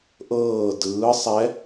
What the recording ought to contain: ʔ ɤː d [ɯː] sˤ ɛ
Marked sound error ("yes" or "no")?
no